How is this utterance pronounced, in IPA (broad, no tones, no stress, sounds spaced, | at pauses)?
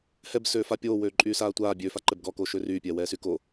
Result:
h ɛ b s øː f a pʲ oː w øː ǃʼ yː s aː tʷ aː bʲ ø f a ǃ ɛ b ɡ ɔ k oː ʃ ø r yː pʲ ɛː w ɛː s y k o